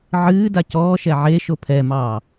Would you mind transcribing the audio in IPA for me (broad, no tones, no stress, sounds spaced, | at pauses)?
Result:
ʕ ɨː d a c ɔː ʃ ɛ ʕ e ʃ o pʰ ɛ m ɑː